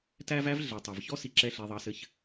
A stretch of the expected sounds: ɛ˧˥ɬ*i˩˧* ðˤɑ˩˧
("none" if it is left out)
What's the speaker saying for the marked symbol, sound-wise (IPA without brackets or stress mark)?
i˩˧